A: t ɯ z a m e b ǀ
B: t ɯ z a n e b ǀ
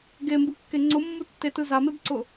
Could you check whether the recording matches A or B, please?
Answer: A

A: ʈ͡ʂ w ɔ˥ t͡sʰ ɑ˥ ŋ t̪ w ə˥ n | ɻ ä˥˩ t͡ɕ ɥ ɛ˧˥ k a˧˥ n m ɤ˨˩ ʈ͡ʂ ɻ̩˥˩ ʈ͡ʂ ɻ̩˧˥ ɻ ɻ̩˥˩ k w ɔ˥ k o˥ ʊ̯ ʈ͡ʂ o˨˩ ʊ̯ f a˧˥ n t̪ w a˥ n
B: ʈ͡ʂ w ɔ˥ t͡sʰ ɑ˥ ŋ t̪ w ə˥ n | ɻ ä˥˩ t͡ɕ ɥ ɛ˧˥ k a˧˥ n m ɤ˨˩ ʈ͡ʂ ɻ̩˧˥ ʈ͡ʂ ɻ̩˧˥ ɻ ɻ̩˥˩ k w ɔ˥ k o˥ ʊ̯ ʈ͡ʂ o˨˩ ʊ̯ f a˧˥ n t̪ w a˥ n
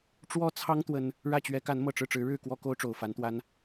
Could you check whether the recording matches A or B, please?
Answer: A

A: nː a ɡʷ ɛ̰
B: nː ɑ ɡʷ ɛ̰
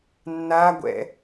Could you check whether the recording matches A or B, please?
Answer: A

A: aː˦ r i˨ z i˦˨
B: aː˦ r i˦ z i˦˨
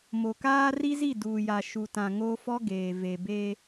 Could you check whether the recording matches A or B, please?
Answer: B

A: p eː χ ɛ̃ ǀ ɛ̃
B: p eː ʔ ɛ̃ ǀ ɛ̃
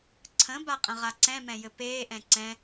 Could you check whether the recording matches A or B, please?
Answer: B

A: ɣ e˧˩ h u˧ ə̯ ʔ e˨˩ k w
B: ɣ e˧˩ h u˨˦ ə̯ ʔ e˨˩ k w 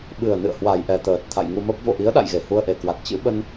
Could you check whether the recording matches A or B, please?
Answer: A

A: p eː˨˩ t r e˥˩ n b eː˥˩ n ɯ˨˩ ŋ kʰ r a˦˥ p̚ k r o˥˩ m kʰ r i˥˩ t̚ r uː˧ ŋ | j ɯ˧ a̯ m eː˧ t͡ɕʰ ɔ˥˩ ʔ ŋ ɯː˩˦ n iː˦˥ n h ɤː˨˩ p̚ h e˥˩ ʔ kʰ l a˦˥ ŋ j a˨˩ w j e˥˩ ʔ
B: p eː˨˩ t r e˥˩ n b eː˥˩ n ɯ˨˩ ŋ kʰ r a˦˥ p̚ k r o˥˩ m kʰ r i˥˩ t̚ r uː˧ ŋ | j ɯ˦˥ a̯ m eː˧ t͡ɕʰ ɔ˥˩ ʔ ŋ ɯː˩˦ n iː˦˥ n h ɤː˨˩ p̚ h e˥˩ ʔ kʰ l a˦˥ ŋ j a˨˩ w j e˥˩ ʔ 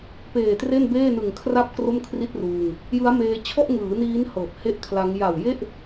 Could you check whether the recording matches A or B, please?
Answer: B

